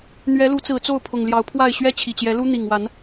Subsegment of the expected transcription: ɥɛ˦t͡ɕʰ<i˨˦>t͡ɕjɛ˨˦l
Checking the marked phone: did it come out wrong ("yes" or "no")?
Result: yes